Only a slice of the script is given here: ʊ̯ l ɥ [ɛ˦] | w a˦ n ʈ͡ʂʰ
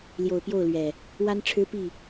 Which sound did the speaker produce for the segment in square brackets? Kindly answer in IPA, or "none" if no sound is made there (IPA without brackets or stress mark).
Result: ɛ˨˩